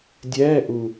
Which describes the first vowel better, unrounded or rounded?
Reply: unrounded